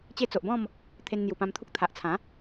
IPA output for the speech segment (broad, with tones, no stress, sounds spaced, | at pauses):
t͡ɕ e˧ t͡s o˨ ʔ b ɔ̃˥˧ m | t̪ʰ e˧ n n̪ j u˨˩ p ã˧ m t̪ʰ u˦ k̚ t̪ʰ a˨ ʔ t͡sʰ ã˨˦